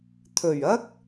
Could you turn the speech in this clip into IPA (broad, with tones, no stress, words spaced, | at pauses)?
t̪ʰɵ˨˩ɥɐ˥k̚